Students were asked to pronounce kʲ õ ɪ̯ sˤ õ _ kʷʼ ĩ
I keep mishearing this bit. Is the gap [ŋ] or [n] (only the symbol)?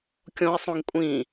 ŋ